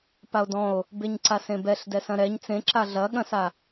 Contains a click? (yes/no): yes